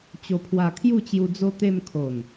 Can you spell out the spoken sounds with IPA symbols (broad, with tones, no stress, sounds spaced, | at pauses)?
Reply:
t͡ɕ o˨˩ pʰ w a˨˩ kʰ j u˥˧ t͡ɕ j u˧ d͡z o˧ t̪ e˧ m kʰ o˨˩ n